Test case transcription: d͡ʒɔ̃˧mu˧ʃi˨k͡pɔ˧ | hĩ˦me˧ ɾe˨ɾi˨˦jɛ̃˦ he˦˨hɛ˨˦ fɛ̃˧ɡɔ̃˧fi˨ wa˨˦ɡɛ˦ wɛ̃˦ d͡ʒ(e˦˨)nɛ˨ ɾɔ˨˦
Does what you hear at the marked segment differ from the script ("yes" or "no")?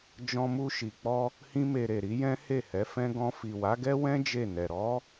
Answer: no